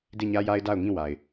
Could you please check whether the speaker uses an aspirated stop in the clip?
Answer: no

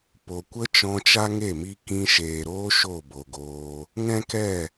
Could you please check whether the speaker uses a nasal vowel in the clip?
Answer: yes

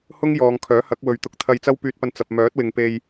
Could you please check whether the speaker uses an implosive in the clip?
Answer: no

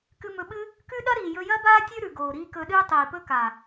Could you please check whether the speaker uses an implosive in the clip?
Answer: yes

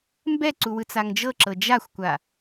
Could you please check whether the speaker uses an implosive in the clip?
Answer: no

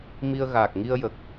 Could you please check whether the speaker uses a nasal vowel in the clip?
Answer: no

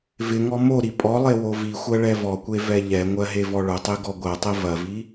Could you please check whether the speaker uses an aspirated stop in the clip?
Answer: no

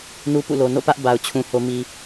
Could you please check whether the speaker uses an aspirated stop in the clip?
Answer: yes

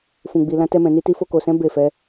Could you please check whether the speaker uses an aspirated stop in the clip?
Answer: no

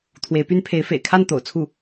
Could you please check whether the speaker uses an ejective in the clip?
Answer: no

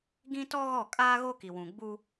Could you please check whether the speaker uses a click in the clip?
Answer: no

